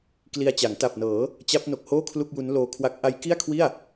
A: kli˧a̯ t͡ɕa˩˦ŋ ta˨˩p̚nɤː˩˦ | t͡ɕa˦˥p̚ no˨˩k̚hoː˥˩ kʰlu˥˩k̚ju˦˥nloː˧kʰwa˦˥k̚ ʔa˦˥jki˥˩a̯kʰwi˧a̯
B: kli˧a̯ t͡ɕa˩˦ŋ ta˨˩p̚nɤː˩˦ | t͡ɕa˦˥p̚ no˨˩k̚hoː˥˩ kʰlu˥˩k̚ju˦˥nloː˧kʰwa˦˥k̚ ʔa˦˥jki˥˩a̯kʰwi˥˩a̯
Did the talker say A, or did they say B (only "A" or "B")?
B